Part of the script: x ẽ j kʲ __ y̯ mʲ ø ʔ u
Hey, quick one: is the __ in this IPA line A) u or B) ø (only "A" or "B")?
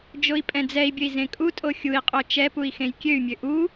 B